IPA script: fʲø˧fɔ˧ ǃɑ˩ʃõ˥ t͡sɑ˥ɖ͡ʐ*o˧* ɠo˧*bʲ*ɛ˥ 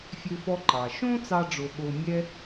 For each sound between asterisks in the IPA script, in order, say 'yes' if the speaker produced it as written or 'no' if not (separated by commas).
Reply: yes, no